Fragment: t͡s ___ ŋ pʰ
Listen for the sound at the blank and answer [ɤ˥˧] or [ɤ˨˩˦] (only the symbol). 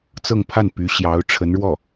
ɤ˥˧